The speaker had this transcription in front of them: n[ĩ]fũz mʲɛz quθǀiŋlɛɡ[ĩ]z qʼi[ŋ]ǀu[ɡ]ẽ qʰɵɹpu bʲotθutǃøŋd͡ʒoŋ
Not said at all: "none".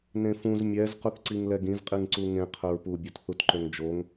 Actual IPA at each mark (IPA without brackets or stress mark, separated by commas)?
ẽ, ĩ, ŋ, ŋ